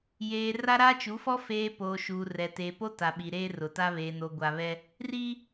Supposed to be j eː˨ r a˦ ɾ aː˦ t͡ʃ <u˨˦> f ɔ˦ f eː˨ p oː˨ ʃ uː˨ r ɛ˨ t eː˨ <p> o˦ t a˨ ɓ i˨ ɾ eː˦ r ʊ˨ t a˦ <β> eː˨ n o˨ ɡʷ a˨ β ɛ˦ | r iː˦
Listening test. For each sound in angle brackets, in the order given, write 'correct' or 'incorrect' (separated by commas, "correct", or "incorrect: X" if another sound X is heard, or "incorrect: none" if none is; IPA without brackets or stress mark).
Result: correct, correct, correct